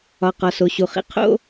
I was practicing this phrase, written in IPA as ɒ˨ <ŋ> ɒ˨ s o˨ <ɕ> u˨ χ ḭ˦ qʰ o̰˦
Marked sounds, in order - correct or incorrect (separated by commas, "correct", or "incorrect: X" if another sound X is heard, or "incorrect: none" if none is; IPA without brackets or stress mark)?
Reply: incorrect: q, correct